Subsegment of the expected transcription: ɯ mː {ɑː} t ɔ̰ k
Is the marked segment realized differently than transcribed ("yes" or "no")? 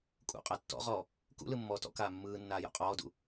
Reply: yes